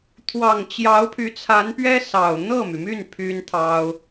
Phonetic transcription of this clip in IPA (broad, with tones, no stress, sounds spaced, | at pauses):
t̪ʰ w ɑ˨˩ ŋ t͡ɕ j ɑ˧˥ ʊ̯ pʰ y˧˥ t͡sʰ a˧˥ n p ɥ ɛ˥ s ɑ˨˩ ʊ̯ n̪ ɤ˥˩ m y˩ m y˥˩ n pʰ y˥ n t̪ʰ ɑ˥ ʊ̯